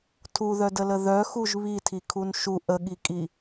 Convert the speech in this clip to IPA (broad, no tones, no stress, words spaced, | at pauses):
tʰuðœdələ ðœxuʒ βitʰikʰun ʃu ʔəɠikʼi